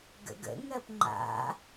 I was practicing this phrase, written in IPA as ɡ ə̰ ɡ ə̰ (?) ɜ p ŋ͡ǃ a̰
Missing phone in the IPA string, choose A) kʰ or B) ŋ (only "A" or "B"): B